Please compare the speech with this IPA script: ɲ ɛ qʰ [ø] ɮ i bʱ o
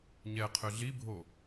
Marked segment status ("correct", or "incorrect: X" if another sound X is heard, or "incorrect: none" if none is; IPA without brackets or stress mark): correct